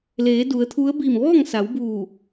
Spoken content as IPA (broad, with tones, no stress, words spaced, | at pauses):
leː˩˧du˩˧ə̯t̪ʰu˧˥ə̯ biː˧˩mʋɔː˥˨ŋ sa˩˧wbuː˧˩